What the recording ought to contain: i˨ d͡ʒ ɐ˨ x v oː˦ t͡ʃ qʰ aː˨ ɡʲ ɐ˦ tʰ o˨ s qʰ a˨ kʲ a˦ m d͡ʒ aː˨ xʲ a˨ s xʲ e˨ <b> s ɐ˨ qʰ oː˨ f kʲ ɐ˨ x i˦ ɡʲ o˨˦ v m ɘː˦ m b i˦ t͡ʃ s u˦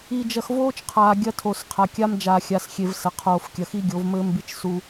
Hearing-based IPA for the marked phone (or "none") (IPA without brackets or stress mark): v